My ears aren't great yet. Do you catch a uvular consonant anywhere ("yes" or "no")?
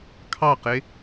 yes